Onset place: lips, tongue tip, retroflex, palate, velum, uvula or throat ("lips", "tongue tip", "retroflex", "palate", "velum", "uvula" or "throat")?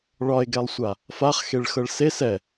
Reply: retroflex